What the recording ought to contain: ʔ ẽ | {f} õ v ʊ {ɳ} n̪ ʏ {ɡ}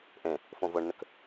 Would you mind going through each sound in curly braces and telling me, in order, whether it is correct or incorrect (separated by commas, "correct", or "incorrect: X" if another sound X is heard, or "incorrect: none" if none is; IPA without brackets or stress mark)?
correct, correct, incorrect: k